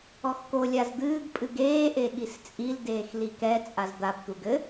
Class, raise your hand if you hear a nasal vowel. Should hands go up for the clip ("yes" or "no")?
no